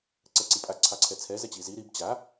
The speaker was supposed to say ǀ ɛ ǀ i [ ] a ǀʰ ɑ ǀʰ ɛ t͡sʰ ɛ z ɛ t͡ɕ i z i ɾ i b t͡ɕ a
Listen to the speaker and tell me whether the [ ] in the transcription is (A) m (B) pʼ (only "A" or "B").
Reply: B